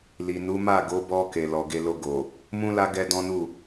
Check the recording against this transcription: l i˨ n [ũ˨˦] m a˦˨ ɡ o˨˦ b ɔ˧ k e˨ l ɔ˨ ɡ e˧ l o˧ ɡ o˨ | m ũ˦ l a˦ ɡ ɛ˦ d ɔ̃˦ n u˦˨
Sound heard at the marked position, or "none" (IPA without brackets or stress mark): u˨˦